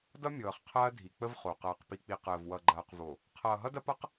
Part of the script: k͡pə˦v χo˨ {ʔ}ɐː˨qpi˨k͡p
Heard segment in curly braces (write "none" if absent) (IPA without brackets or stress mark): q